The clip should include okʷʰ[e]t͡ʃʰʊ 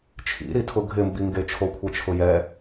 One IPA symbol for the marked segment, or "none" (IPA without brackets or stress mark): ɛ